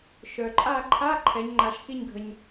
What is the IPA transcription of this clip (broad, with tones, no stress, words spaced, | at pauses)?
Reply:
ʃœ˩ǃʼa˦˨ǃʰa˧˥˧ ǃʰɛ˩˧ɲŋ͡ǃa˩ʃxi˦˨ɲɡʱə˩ɲ